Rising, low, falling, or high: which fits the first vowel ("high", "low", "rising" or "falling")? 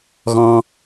high